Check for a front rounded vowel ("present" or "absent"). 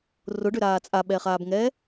present